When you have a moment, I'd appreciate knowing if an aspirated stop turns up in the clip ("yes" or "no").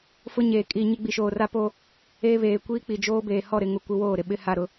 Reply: no